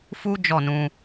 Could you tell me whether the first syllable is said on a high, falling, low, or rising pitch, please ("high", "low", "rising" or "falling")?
high